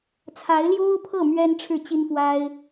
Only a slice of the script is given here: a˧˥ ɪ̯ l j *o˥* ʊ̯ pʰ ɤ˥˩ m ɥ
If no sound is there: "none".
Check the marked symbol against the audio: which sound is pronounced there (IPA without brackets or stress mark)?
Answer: o˥